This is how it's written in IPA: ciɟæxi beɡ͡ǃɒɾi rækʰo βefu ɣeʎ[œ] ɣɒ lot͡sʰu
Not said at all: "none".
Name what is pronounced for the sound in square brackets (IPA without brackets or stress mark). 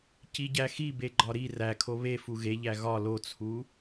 æ